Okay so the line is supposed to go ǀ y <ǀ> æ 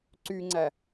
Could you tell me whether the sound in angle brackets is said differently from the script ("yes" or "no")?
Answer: yes